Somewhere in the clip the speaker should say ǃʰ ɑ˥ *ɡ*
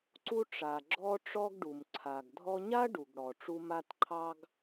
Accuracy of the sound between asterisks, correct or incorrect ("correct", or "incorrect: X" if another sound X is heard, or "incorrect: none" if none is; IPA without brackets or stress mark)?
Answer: correct